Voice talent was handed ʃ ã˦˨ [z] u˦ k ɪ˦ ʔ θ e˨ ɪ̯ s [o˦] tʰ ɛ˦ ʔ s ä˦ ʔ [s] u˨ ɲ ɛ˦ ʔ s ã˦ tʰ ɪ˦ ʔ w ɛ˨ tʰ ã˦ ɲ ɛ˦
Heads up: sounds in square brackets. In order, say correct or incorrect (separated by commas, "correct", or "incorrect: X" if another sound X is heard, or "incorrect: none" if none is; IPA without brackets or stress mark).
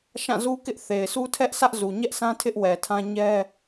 correct, incorrect: u˦, incorrect: z